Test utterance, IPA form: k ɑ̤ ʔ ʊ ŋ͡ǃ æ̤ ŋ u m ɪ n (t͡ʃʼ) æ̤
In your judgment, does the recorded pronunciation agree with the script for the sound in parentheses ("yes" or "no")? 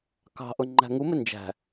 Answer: no